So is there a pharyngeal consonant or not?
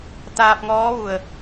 no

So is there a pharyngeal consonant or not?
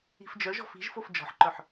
yes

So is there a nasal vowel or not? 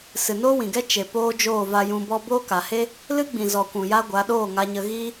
yes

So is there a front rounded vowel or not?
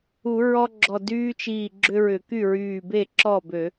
yes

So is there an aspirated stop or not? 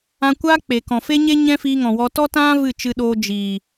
no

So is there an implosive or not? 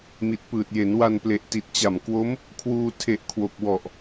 no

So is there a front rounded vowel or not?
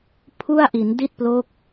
no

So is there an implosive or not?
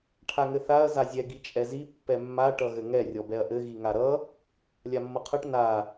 no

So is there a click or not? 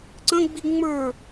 yes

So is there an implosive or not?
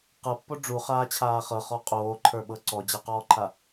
yes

